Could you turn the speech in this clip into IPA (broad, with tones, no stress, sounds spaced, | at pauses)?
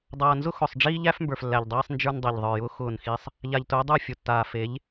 dˤ aː˨ n z ʊ˦ x ʊ˨ sˤ ɖ͡ʐ iː˦ ʎ æ˦ f m b ə˞˨ f lː æ˨ ʎ dˤ iː˦ sˤ n d͡ʒ ə˞˦ n dˤ i˨ ʎ ðˤ ə˞˨ j ʊː˦ x ʊː˦˨ n x i˦ sˤ | ʎ a˨ ʎ t ʊː˨˦ dˤ ə˞˦˨ fʲ ʊ˨ tː aː˨ f e˨˦ ʎ